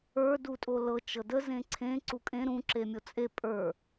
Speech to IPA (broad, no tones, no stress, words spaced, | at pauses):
ə˞ dutʼolɤ t͡ʃɤdə zẽǀʰẽ ǀukʼẽ ɾũ ǁemʲot͡sʼe pʼə˞